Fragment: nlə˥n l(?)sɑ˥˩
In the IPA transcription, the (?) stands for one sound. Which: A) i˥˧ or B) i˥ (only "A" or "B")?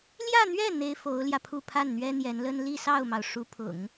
A